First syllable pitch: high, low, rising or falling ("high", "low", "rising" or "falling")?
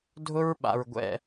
high